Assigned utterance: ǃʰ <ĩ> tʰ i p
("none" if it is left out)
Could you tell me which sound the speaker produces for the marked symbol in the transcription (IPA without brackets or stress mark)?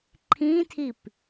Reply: ĩ